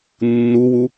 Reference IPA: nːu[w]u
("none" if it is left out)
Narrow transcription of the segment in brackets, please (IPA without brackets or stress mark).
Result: w